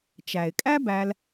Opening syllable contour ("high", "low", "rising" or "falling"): low